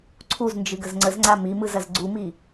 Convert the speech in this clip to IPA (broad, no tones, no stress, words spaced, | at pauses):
ǀʰuznd͡ʒɨɡəz ŋ͡ǀəzŋ͡ǀa mimɯzɐz ɡ͡ǀumi